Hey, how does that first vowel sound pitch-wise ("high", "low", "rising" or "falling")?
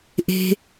high